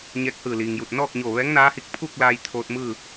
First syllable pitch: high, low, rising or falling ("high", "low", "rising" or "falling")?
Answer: rising